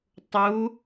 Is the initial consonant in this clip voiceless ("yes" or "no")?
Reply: yes